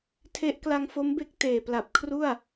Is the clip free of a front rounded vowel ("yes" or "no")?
yes